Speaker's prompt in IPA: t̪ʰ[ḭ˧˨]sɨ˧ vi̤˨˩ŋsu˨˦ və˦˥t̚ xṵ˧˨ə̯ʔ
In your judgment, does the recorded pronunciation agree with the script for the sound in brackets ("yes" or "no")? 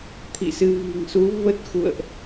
yes